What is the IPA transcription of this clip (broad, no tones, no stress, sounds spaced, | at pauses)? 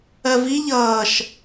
ɜ v i ʎ ʌː ʃ